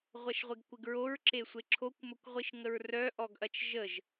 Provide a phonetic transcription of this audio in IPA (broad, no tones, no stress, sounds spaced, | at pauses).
ʁʷ ɐ ʃ ʁʷ ɪ ɡ kʷ ɪ ɡ ɹ o ɹ ǁ e sʷ e ǁʰ o kʷ m ə kʷ ʁʷ i ʃ ŋ ə ɹ r œ ʔ ɔ ɡ ʔ ɐ t͡ʃ ʒ ə ʒ